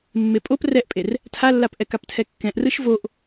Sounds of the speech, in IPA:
mːepʼop rɛʔpʼer | tʰalːapʔɛk aptʰɛkːɛ̃ʔ rɯʃvoʔ

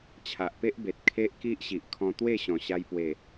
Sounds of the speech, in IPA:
t͡ɕʰa˨ʔpe˦ʔ be˨t̚kʰe˦ʔ ki˦ʔɕi˨ʔkʰɔ̃˧ t̪we˥˧ɕɔ̃˨˩ɕa˧j pwe˨˩

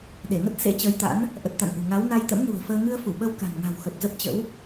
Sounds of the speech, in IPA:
ɗe˧˩ŋə˦˥t̚ sḛ˧˥t͡ɕəː˨˦jt̪a̰˧˥n | ʔə˨˩t̚t̪a̰˧˨n ʔṳ˨˩ ŋa˨˦w na˧j t̪ə̰˧˥mnṳ˨˩ə̯fəː˧ ŋɨ˧ə̯fu˧˩ ɓə˧w ka̤˨˩nŋa̤˨˩w xə˨˩p̚zə˦˥p̚t͡ɕə̰˧˥w

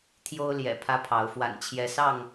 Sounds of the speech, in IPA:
t̪ʰjo˦ʊ̯ljɛ̰˨˩ pʰä˦pʰɑ˨˦ʊ̯ fwa̰˨˩nt͡ɕʰjɛ˨˦sɑ˥˨ŋ

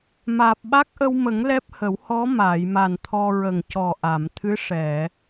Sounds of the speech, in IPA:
maː˨˩p̚ɓa˦˥k̚ʔə˧wmə˨˩˦ŋ lɛ˦˥p̚hə˨˩˦w hɔ˧˥ maː˨˩˨jma˨˩n t̪ʰɔ˧ɹə˨˩ŋ cɔ˨˩ʔa˨˩˨mt̪ʰɨ˧˥ ʂɛ˨˩˨

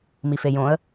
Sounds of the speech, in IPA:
mifejõə̯

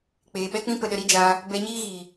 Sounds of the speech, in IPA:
k͡peː˨ɓɛ˦k͡pĩ˦ pə˧ɗə˧ɾi˦ d͡ʒaː˧ | bɛ˧ɲiː˦ɣiː˨

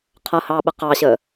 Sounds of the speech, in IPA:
qʰʌhɑːɓə qɑɕəː

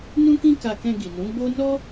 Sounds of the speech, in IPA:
nũ˦kĩ˦ ka˧kɛ̃˧ɡi˨nũ˨˦ ɡ͡bo˦ nɔ˦

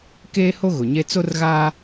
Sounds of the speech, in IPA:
keː˦ho˦ ɣʊ˨ɲe˦ t͡so˦rɣaː˦

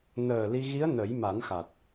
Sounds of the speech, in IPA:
nəː˨˩ li˧ ɣi˧˥ə̯ nə˨˩˦jma˨˩˦nxa˨˩t̚

